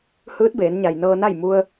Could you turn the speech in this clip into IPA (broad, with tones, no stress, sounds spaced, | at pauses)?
h ɯː˧˥ t̚ b eː˩˧ n ɲ a˩ j n ɤː˧ n a˥˨ j m u˧ ə̯